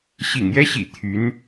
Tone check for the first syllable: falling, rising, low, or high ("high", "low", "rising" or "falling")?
low